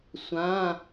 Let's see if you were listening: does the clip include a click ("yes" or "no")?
no